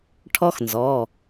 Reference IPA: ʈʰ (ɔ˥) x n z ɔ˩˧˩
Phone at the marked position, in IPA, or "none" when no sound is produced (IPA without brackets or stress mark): ɔ˥